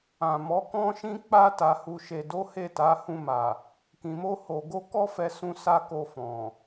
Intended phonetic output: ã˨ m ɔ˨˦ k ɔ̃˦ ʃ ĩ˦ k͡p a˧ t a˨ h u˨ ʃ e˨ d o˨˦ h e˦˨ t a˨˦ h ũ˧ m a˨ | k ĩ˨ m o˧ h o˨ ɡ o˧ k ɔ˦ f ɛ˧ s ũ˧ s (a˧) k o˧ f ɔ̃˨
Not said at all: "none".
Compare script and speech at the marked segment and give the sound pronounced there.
a˧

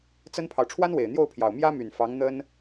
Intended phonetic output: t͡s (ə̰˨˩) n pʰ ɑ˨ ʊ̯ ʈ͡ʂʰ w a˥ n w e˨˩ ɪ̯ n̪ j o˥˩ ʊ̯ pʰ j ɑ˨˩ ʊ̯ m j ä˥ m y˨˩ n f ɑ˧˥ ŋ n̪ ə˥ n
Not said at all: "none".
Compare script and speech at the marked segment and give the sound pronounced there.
ə˥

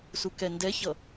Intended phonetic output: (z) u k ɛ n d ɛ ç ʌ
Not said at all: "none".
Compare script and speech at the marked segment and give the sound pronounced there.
s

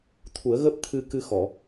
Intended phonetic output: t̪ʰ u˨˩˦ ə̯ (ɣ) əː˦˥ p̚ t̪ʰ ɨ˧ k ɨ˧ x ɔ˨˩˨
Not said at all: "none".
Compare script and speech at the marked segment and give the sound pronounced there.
ɣ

